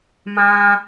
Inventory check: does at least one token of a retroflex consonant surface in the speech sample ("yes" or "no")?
no